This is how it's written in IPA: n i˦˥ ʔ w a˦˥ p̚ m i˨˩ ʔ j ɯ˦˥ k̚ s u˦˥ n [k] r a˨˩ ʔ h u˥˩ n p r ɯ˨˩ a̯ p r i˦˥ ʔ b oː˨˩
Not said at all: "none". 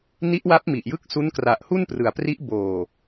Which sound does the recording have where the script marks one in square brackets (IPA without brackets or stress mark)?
k